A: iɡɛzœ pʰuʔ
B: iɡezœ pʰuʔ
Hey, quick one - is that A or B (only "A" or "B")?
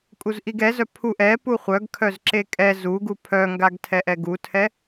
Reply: A